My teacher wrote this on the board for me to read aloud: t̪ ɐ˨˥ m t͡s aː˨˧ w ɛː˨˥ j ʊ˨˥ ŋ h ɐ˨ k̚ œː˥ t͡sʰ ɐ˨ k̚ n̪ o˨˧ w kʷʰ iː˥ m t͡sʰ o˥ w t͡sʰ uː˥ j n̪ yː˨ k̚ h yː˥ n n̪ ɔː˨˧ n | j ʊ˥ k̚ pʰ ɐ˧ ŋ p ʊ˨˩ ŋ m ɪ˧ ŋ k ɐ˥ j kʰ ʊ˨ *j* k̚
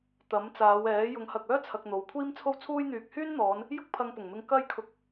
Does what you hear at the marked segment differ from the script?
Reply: yes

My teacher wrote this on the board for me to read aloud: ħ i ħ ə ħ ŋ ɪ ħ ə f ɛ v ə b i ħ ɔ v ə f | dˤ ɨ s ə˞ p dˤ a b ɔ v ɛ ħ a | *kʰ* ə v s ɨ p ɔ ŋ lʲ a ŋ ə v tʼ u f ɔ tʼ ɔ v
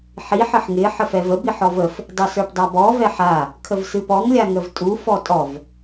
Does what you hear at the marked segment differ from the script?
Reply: no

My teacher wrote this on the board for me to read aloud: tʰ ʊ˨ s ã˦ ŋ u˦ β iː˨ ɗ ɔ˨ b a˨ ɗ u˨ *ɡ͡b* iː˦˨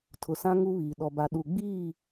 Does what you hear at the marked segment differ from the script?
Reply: no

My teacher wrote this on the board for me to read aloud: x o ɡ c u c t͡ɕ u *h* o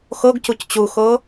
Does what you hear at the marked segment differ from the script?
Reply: yes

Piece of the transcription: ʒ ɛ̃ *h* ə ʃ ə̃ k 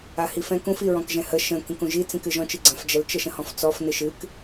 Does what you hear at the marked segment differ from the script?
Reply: no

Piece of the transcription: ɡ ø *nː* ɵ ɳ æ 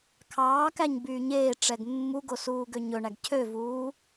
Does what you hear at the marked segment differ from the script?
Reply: yes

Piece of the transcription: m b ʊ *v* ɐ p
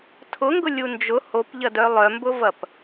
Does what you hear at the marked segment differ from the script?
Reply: no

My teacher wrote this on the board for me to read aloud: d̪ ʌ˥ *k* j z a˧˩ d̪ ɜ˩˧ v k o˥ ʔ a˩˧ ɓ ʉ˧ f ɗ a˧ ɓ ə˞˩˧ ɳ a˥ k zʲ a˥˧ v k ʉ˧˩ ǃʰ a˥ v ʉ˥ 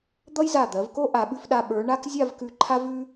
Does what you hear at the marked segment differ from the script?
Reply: yes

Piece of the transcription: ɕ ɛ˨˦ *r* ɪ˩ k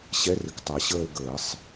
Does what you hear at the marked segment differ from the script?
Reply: no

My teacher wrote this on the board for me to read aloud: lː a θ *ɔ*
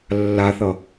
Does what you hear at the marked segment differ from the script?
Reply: yes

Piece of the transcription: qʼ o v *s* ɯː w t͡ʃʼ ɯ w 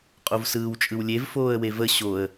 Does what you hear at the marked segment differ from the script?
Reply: no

